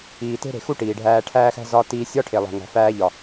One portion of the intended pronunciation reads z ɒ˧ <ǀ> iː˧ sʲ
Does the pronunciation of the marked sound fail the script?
yes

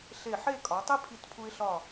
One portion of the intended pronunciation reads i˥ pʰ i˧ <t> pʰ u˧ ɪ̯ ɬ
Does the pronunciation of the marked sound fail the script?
no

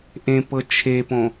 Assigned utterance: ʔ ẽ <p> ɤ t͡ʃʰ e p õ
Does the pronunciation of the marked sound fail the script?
no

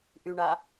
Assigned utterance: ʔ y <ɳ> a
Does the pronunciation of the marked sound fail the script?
no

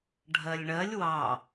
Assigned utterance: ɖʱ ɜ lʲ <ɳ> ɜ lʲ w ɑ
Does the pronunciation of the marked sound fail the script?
no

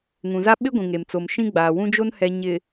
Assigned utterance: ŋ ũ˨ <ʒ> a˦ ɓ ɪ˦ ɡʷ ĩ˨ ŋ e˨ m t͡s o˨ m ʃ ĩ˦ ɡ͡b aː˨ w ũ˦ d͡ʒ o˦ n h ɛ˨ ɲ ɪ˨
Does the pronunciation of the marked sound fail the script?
yes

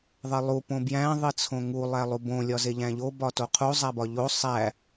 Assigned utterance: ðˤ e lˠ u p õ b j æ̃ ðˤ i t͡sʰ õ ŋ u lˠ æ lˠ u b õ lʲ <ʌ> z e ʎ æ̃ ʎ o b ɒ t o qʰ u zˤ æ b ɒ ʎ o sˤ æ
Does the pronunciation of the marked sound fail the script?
yes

